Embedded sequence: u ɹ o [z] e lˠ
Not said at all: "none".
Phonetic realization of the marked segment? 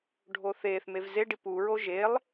ʒ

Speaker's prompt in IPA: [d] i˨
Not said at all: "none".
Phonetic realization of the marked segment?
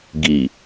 ɡ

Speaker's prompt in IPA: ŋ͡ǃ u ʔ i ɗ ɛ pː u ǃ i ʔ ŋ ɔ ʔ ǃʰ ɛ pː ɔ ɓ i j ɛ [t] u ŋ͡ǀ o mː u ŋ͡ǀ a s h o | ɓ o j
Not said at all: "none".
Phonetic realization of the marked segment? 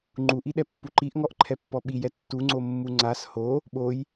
tː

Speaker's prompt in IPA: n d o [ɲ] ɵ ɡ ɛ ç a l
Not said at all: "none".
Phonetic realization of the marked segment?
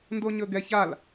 ɲ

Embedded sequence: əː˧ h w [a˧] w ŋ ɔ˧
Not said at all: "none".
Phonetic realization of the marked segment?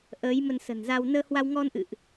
a˧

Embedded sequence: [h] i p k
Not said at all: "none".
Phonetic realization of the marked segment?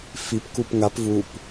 f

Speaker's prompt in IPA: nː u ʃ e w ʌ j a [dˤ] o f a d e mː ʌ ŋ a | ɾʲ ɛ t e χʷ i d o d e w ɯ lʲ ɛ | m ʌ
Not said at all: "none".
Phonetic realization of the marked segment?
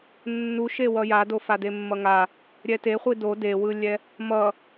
d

